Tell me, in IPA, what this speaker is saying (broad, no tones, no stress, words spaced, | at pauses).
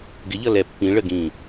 ɡɪʎʌ lɛ pːĩ ɭəɡĩː